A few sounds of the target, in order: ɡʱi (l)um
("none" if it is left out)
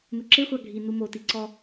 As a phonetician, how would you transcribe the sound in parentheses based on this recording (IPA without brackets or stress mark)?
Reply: n